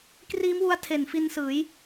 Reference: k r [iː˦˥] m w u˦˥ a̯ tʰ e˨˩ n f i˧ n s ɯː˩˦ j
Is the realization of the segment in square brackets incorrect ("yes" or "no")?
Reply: no